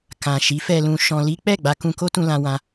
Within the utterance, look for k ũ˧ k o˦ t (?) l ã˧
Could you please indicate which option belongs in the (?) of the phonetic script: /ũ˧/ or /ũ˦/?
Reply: ũ˧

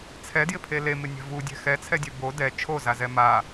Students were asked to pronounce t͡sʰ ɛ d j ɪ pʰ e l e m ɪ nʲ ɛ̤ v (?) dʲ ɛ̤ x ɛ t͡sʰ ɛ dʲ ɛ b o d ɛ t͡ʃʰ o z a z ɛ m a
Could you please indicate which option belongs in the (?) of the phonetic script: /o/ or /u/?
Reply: u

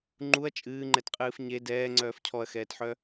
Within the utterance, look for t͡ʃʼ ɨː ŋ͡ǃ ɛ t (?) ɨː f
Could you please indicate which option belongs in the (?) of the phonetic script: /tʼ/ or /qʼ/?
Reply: qʼ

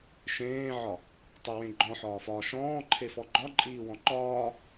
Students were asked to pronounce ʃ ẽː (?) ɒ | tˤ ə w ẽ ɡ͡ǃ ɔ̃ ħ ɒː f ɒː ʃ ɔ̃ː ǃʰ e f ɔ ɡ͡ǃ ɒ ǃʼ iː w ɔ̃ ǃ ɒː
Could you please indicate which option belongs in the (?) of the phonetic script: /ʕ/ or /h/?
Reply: ʕ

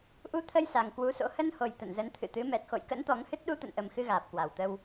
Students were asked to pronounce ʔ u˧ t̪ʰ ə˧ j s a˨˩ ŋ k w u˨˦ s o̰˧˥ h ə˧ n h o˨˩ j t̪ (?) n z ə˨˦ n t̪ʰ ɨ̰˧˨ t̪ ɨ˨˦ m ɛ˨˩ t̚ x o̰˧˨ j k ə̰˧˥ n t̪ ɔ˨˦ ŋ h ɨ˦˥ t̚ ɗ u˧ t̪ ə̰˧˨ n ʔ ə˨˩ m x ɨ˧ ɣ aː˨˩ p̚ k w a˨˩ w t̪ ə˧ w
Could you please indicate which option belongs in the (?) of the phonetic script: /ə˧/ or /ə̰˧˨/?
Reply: ə̰˧˨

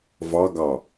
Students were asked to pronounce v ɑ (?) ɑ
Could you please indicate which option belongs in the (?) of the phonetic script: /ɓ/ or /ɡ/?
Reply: ɡ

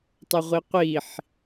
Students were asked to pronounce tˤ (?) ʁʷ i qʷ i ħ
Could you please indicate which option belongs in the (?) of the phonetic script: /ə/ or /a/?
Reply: ə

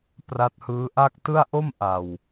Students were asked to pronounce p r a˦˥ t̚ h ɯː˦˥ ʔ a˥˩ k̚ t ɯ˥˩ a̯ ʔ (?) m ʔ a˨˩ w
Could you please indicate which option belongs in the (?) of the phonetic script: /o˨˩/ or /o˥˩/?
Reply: o˥˩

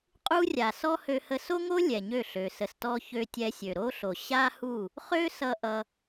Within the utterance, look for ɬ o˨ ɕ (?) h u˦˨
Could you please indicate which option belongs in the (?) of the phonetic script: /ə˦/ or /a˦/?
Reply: a˦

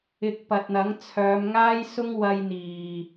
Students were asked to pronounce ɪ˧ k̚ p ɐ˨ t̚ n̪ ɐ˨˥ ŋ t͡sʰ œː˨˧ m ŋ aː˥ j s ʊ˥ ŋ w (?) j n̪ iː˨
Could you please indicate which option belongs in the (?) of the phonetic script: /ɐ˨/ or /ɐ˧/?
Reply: ɐ˧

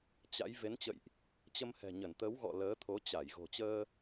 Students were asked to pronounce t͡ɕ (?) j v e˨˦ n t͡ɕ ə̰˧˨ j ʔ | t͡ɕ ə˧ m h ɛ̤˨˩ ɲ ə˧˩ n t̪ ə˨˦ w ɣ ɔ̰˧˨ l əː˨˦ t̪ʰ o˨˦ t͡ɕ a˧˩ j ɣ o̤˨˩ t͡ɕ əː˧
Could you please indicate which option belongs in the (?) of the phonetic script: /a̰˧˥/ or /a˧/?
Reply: a̰˧˥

